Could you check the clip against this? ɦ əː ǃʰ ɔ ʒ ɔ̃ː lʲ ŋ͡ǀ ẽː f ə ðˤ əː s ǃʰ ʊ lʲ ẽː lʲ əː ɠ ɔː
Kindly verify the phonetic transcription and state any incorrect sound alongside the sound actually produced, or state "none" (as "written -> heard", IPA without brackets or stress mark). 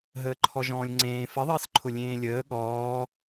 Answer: none